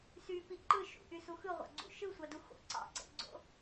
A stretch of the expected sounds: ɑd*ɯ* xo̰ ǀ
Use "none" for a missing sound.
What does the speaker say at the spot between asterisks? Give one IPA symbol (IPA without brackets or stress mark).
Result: u